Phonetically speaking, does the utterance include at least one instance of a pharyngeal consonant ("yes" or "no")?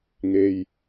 no